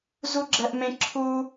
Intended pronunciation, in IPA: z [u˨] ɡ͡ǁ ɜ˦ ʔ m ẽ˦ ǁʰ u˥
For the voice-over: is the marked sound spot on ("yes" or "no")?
no